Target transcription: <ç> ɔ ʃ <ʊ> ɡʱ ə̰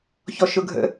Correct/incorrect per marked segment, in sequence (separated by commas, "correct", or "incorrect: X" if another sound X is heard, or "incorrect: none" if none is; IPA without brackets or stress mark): correct, correct